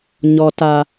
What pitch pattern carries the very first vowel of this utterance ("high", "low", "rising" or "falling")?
high